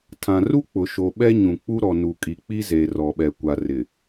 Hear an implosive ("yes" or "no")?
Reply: yes